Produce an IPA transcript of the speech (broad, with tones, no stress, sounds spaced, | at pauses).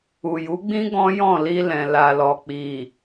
u˨ j u˨˦ ɡ͡b ĩ˦ ɡ ɔ̃˦ j ɔ̃˦˨ l i˧ l ɛ̃˨ l a˨ l ɔ˨ k͡p i˨